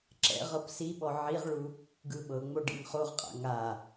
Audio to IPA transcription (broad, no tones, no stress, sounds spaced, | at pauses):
ǁ ɛ̰ ʁ ɤ p s i ɓ ɔ ʕ i ʁ ɭ u | ɡ ɯ ɓ ɤ ŋ͡m o ɖ ḭ ŋ χ o ʁ qʼ a̰ ŋ a